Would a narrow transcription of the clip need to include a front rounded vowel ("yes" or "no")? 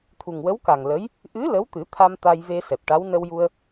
no